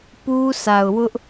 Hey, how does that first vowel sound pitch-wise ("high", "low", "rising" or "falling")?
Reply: high